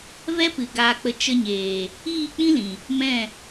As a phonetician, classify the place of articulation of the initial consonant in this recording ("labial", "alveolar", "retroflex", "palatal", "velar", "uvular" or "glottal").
labial